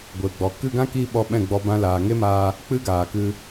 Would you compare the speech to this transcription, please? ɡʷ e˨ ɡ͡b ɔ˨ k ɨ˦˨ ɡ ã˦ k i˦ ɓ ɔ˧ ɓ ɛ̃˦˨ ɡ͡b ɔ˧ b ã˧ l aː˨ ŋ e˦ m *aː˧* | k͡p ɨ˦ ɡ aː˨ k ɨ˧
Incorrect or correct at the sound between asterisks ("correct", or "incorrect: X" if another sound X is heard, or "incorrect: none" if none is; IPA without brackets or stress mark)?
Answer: correct